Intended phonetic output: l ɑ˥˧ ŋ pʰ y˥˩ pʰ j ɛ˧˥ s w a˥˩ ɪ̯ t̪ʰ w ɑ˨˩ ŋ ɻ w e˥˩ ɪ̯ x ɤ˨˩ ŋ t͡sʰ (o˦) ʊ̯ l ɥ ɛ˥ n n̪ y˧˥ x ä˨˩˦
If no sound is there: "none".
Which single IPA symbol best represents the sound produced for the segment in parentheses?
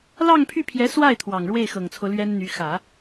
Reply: o˦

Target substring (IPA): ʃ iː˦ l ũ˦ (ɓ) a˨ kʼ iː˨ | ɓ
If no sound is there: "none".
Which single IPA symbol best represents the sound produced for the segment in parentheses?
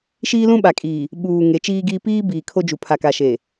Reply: ɓ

